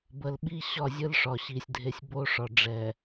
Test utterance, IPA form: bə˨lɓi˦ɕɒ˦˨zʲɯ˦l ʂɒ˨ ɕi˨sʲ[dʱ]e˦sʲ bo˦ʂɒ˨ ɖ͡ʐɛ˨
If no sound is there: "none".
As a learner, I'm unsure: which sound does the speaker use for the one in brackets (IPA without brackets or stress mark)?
dʱ